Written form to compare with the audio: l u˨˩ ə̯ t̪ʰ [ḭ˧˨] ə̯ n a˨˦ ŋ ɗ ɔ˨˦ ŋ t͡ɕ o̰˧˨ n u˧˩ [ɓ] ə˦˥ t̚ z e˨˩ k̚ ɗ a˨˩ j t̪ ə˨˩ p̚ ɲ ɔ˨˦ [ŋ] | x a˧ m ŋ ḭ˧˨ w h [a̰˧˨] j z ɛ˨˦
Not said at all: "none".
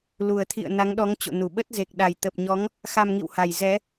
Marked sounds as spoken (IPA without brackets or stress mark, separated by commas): ḭ˧˨, ɓ, ŋ, a˨˩